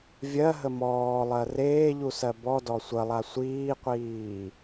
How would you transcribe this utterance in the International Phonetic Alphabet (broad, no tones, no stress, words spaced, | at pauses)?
vʲɜɦə mɔːlˠɜ reːʎusɜ bɔdɔ sʷəlˠa sʷiːqʷiː